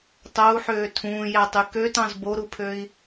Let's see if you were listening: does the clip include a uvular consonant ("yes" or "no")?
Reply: no